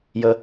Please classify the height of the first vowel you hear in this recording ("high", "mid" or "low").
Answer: mid